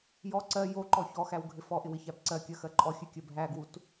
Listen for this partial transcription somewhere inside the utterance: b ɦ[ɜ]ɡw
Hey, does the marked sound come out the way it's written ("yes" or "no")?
no